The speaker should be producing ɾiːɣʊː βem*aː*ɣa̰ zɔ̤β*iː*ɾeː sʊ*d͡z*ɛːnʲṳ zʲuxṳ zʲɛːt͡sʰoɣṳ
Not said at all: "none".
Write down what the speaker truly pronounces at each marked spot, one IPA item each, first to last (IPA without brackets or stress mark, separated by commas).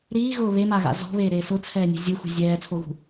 aː, eː, t͡sʰ